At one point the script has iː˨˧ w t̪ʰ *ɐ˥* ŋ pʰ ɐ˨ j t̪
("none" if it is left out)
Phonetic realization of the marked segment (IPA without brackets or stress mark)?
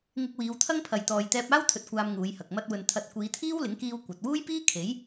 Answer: ɐ˥